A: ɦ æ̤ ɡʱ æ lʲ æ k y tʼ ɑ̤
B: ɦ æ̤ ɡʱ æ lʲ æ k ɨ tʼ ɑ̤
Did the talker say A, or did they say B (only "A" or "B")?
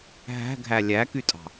A